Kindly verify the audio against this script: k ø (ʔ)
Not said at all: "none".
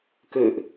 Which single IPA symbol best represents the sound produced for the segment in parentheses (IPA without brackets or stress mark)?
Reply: ʔ